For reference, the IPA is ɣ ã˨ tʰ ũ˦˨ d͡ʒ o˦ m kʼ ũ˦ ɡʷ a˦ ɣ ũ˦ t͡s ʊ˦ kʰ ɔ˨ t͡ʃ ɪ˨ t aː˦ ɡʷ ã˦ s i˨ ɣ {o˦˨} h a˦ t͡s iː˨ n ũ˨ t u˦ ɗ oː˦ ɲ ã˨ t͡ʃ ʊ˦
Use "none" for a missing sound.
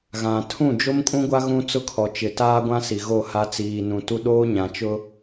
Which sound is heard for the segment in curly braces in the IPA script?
o˦˨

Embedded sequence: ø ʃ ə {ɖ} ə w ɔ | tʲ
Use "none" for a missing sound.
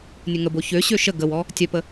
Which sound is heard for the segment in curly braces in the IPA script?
ɡ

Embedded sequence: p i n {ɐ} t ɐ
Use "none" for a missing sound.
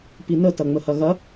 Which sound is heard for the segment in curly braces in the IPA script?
ə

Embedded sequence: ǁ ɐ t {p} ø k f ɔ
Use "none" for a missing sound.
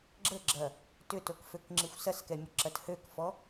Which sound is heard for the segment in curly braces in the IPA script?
h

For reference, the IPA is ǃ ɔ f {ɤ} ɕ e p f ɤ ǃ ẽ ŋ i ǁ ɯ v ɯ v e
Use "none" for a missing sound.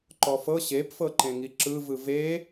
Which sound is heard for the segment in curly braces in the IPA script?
ɤ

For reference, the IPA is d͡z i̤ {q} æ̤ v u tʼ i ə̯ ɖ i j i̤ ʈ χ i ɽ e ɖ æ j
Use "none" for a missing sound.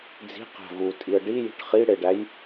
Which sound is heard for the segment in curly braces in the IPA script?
q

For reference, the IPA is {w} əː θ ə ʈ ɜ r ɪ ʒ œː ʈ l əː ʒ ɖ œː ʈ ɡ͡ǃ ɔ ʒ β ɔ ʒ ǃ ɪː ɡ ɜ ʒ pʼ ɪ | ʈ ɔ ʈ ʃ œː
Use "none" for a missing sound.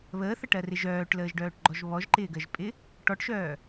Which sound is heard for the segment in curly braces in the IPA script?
β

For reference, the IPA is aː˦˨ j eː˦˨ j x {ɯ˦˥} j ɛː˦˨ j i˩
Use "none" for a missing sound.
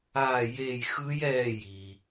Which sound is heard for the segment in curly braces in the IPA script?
ɯ˦˥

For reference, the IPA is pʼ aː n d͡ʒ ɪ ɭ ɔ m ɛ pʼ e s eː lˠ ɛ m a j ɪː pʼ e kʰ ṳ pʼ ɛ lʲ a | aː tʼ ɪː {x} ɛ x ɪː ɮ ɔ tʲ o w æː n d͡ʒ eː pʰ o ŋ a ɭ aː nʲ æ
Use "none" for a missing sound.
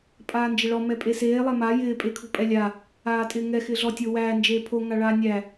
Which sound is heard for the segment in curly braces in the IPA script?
ŋ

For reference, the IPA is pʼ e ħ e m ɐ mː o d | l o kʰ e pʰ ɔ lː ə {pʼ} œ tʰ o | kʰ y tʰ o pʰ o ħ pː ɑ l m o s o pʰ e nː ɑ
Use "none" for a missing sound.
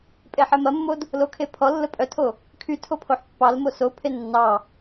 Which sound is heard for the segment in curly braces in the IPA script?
pʼ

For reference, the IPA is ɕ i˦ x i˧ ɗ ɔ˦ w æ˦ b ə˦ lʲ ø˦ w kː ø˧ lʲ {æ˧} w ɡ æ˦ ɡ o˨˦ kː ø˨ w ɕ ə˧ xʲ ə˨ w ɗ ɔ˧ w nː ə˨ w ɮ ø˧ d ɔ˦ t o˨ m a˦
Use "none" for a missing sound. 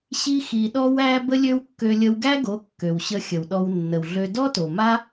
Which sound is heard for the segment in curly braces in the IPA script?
ə˧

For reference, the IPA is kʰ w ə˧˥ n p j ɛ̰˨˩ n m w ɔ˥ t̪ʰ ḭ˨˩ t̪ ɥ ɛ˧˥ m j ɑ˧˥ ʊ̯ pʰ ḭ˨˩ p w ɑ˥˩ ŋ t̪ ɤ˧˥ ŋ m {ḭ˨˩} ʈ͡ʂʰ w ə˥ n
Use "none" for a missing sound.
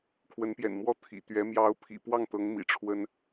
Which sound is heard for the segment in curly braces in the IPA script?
ḭ˨˩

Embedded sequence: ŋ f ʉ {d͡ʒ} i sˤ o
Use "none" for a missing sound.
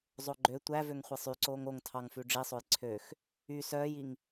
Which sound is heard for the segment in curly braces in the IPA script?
ɖ͡ʐ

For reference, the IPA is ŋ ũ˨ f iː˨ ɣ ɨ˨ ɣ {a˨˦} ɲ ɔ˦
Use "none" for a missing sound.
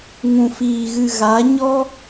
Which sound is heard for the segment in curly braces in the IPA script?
a˨˦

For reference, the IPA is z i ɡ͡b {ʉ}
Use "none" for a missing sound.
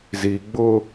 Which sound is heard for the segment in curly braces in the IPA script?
ʊ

